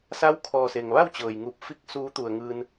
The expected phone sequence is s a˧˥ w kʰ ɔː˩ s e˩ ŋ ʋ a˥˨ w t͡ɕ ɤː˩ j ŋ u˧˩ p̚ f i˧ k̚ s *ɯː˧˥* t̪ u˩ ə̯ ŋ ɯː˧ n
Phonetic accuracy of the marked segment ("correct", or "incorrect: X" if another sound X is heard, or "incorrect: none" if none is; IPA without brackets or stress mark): incorrect: uː˧˥